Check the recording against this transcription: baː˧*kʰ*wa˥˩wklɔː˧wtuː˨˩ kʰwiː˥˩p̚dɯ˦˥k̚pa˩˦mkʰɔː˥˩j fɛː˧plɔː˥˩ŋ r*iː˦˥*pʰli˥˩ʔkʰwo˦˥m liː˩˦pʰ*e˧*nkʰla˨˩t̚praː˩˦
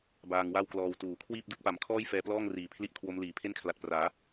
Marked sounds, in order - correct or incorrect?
incorrect, incorrect, incorrect

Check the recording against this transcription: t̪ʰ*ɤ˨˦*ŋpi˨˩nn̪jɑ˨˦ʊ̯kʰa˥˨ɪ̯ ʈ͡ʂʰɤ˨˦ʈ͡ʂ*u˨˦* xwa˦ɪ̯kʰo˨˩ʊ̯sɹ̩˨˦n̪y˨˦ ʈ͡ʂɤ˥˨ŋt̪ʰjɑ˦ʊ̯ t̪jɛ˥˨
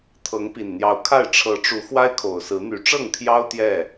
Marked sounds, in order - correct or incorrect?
correct, correct

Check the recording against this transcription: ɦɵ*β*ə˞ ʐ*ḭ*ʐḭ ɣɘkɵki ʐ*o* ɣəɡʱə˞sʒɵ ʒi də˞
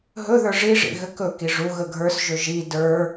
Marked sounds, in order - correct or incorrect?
incorrect, incorrect, incorrect

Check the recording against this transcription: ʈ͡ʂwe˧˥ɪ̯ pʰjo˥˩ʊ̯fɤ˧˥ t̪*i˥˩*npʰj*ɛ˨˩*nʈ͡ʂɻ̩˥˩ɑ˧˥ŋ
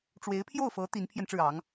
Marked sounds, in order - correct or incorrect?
incorrect, incorrect

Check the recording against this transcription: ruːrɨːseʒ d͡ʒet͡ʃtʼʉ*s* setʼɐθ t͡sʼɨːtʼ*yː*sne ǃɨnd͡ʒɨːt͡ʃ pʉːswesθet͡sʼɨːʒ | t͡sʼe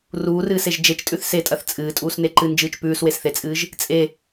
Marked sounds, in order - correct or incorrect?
incorrect, incorrect

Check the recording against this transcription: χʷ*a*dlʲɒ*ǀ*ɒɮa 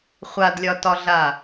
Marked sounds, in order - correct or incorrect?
correct, incorrect

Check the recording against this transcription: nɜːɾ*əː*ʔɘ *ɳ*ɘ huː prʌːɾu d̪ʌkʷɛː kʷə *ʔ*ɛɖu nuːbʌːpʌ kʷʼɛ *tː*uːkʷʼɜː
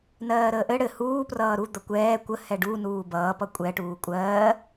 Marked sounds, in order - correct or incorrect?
correct, incorrect, incorrect, incorrect

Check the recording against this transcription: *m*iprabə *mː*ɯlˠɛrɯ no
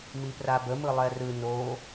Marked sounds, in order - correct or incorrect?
correct, incorrect

